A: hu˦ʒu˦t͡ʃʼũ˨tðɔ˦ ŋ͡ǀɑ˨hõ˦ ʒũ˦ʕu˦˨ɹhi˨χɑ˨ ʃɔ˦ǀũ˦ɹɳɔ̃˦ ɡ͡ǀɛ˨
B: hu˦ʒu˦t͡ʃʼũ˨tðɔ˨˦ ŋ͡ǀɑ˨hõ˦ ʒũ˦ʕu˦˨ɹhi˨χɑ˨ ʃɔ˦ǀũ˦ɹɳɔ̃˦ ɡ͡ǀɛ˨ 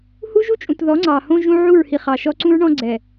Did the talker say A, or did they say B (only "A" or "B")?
B